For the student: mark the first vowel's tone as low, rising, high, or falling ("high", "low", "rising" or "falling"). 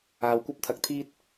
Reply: low